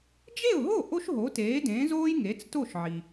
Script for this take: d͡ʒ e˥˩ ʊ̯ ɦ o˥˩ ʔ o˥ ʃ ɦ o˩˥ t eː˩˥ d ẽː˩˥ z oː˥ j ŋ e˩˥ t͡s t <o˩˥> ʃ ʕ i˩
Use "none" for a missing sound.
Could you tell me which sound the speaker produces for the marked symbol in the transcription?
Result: o˥˩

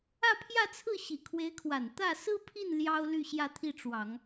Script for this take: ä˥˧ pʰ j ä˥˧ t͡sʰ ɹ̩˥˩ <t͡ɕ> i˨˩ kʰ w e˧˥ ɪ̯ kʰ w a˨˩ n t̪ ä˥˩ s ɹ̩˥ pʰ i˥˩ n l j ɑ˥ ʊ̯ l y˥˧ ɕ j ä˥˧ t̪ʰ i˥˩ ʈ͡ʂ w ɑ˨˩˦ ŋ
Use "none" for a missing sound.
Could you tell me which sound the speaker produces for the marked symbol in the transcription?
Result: ɕ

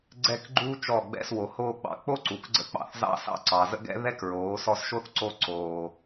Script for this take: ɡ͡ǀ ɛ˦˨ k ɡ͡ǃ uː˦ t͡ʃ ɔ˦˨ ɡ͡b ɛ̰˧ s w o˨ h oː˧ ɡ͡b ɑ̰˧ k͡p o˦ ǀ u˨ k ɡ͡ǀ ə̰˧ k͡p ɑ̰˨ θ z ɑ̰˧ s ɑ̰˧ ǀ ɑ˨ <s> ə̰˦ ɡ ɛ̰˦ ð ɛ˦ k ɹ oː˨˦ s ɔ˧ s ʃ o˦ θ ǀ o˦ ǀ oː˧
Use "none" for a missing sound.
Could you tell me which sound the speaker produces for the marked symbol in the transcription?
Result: z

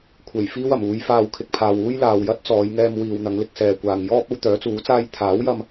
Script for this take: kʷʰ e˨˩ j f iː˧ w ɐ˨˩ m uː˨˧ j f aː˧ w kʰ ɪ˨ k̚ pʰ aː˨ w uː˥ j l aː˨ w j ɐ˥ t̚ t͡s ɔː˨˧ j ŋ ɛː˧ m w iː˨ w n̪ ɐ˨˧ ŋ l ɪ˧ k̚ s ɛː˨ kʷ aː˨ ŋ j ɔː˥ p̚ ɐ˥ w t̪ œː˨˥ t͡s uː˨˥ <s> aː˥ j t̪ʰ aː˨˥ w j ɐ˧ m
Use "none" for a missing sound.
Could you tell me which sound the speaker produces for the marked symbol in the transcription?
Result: t͡s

